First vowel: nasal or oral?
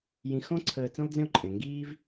nasal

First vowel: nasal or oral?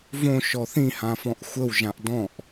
nasal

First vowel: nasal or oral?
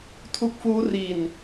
oral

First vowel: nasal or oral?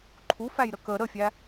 oral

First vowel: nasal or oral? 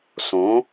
nasal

